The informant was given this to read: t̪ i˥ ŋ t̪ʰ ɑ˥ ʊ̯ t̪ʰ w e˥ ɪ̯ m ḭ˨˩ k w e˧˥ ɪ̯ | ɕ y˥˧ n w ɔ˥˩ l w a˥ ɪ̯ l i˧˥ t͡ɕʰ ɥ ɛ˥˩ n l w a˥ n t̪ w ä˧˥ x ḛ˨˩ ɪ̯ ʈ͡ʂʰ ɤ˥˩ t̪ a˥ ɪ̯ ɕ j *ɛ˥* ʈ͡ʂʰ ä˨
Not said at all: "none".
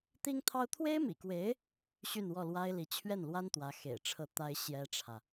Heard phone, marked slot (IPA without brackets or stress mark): ɛ˥